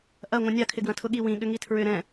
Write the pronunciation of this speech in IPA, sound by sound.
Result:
ʔɐ ŋʷɐ̃nʲakʰɪɡwɐ̃ tʰʊɠi wĩ ɠʏŋitʰɹʏ ɾɛ̃

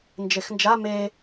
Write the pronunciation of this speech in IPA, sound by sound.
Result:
nd͡ʒexnd͡ʒa me

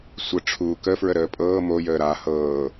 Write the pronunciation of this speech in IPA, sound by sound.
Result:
sʷə ʈ͡ʂʰuːkəfɹə ɾəːpʼɤː mojəː ɾa hɤː

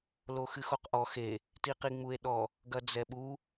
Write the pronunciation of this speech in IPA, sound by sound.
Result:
loxɨxoqʔɔ xe | tiqiŋ͡mue̯ɗɔ | ɡɐd͡zɛɓu

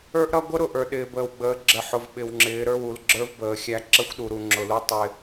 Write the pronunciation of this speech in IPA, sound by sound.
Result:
ə˞˦ʔɾʌ˦ ɡʷə˦ɾʊ˨ ʔə˞˨ɗɪː˨bəː˨wɡ͡bəː˨˦ ɡ͡ǁə˨ħʊ˨v ɓɪ˨wŋ͡ǁɪː˨˦ ɾə˞˦˨wu˨lɡ͡ǁə˞˦v bəː˨˦xʲæ˦ ǁə˦xʷɗu˨ɾu˨ ŋ͡ǁʊ˨lu˦ tˤɪ˦

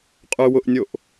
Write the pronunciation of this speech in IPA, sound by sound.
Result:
qʼʏ wʊʔnʲoʔ

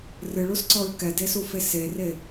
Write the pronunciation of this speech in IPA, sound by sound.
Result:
rɨɭusǀɔɹ kɛdesufe sere

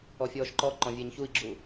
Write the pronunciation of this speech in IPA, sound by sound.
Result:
ɔfʲɔːʃǃɔ ǃɔ̃vʲeːɲçui̯ɡ͡ǁu

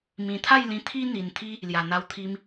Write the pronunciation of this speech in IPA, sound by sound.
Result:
mĩ˨˩t̪ʰa˥˧jlĩ˧ t̪ʰi˦n̪i˨˩n t̪ʰi˦ | lja˨˩ n̪a˧wt̪ʰi˧m

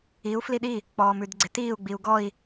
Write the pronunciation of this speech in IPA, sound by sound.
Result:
iu̯ fliɗi | k͡pɔːmʉdɡ͡ǀɪtiːu̯ ɡ͡biu̯ɡɔi̯

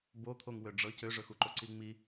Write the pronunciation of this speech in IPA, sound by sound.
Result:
bot̪ʰoŋ wøɖ͡ʐɤc øʐɵxuǃo ǀiŋ͡mi

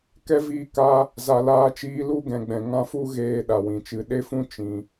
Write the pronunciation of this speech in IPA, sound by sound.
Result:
kɛ˦viː˧ ka˧ | za˨laː˧t͡ʃiː˧ lu˦ ɡɛ̃˨ɡ͡bɛ̃˨ ŋã˧fu˧ ɣeː˧ ɗa˨wĩ˨t͡ʃɨ˨˦ ɗe˦fũ˦ t͡ʃĩ˨

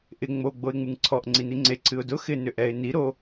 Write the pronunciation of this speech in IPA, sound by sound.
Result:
ʔɪ ŋ͡mo ɡ͡boɪ̯ŋ͡mɨŋǀʰɔʔ ŋ͡ǀiniŋ͡ǀe ǀʰɨʊ̯dʊ xɪ nʏʔɛɪ̯ ni ɾo

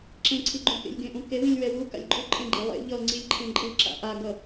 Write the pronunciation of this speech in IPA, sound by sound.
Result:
ǁẽǀʰiɡ͡ǃũ kḛlʲɡẽʔũke wĩlʲwɛwu ka̰lʲɡ͡ǃuǃʼẽɡ͡ǃe lˠḛ ʎʌŋ͡ǀilʲǃʰẽ ǃʼɯ ǁa̰ʔaɡʌ

